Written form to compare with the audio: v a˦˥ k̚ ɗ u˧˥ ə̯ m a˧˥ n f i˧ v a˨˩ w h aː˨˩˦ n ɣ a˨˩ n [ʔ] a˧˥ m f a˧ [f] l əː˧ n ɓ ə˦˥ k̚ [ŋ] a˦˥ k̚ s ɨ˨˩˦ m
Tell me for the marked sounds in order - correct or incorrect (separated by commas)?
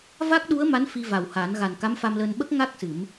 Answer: incorrect, incorrect, correct